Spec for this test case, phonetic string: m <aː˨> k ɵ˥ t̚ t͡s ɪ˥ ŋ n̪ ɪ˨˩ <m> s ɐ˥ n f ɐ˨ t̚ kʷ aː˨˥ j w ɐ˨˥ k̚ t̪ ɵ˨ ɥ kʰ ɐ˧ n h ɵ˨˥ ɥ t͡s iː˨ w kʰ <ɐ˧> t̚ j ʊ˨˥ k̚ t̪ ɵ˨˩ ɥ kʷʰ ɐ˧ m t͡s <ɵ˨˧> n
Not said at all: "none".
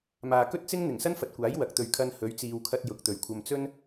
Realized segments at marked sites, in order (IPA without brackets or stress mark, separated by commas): aː˨, ŋ, ɐ˧, ɵ˥